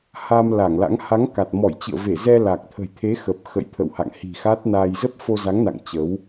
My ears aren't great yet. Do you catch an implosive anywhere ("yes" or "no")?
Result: no